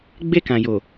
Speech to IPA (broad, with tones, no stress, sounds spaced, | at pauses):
ɡ͡b e˦ k ã˨ j o˨